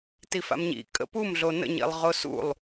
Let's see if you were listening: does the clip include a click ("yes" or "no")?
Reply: no